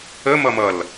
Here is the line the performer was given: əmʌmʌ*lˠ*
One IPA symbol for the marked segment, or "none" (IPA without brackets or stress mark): l